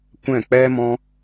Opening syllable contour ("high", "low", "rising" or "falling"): falling